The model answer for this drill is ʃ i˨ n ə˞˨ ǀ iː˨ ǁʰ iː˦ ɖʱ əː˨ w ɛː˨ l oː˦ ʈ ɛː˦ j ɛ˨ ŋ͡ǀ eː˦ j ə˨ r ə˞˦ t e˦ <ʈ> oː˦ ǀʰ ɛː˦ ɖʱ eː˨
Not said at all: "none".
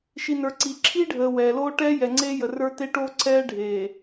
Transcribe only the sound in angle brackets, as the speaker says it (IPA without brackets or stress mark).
ʈ